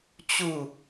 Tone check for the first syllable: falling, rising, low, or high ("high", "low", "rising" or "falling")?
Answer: falling